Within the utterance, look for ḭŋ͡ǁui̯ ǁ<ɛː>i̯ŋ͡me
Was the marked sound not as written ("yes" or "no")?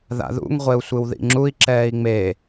no